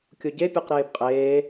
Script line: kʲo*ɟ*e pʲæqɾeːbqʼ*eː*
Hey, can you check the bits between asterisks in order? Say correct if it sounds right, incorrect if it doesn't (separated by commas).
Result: correct, correct